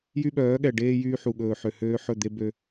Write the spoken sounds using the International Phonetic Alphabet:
jy˦ɓœː˨˦ɠɛ˨ ɖeː˦ jyː˦ħu˨ɠɵː˨ ħø˨høː˦ħɵ˦˨d̪e˦ bø˦

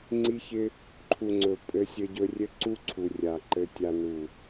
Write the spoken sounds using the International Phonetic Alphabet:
ŋ͡ǀi˦çɪ˦ | ǃʰu˨ ŋ͡ǀɵ˨ pʼɘ˧sʲɘ˧ɟɵ˧rʲɘ˦ ǀu˦ǀʰu˨ rʲa˨ǃɘ˧tʲa˧ nu˨

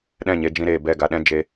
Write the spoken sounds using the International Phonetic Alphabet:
ɗɛ̃˦˨ɲe˧ d͡ʒĩ˧ɾeː˨ bɛ˦˨ɡa˧ɗɛ̃˦ d͡ʒe˧

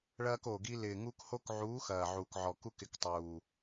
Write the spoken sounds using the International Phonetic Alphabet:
ɭɐː˦ko˨˩ɡi˦ lɪː˨˩ŋu˦k ho˦kʕuː˨˥xɐː˨˩ ʕuː˨˩kʕɔ˨˩ku˦k ɪ˨˥ktˤuː˨˩

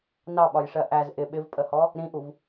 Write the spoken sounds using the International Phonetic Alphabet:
nɑɓɒjʂɜ ʔæz ʔɪ ɓɪvpʼəhɔ | ɾĩʔuv

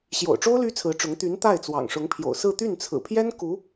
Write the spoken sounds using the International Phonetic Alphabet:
ɕjo̰˨˩ʊ̯ʈ͡ʂo˥ʊ̯ ly˥t͡sʰɹ̩˧˥ʈ͡ʂʊ˧˥ŋ t̪y˧˥n t̪a˥˩ɪ̯t͡swɑ̰˨˩ŋʂʊ˧˥ŋpʰjo̰˨˩ʊ̯ sɹ̩˥˧ t̪y˥˩nt͡sʰɹ̩˨˩pʰjɛ˥n ku˧˥

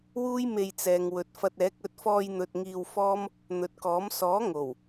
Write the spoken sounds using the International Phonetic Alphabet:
wuː˥jme˧jt͡sɛː˨ŋ wɵ˨t̚fɐ˧t̚ɛː˨˥k̚ ɵ˨t̚fɔː˧jn̪ɵ˨t̚ ŋiː˧wfɔː˥m | n̪ɵ˨t̚kɔː˨˥m sɔː˨˥ŋo˨˩w

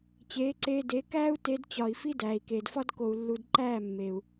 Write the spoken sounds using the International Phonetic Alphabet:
t͡ɕeː˨˦ǀeː˧de˨˦ kæː˦u̯te˧d t͡ɕɒ˨i̯ fi˦dæː˨i̯keː˨dfɒ˦d ko˨u̯lːu˨d ǃæː˦˨mːeː˨u̯

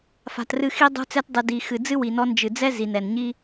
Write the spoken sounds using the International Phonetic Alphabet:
fa̤˨trɨ˧xi˦ dˤṳ˧t͡sɛ˧tdˤɨ˨di˨ xɨ˨d͡zɨ˦wi˨ nɔ˧nd͡ʒɨ˨d͡zɛ˦ zi˨nɛ˨nɲi˦

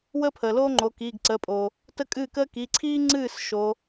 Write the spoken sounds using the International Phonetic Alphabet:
wəː˥pʰəː˩loː˥ŋ͡ǃo˩˧˩ kiː˩˧˩ɡǀəː˩˧˩pʼo˩ | tə˥ kʼɨː˥˩kəː˥ ki˩˧˩ǀʰiː˥ŋ͡ǀɨː˥˩s ʃo˨˦

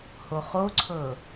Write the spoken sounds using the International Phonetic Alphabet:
hoχoǀʰɤ

